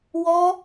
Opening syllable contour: high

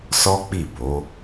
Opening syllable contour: high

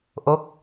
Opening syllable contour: rising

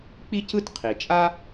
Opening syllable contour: high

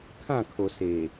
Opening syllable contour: falling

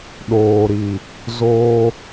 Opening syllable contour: low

